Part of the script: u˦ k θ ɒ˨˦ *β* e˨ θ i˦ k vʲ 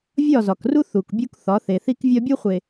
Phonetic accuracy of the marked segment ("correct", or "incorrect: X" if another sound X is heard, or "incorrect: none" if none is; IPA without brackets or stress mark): incorrect: θ